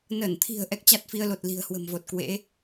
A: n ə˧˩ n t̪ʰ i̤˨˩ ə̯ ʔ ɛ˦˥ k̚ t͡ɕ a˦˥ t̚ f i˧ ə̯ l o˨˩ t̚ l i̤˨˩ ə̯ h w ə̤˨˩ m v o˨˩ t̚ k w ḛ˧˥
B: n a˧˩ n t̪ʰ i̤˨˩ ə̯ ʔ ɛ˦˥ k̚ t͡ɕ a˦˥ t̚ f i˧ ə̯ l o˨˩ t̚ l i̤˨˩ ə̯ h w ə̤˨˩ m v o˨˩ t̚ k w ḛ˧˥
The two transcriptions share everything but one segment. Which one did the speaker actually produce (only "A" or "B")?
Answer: A